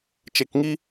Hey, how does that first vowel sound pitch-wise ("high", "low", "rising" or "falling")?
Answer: low